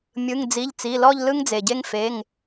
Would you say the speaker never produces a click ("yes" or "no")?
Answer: yes